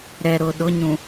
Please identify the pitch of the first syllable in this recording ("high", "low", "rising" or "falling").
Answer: low